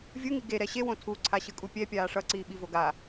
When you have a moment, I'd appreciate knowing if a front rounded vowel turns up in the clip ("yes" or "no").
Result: no